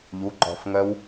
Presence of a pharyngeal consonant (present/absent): absent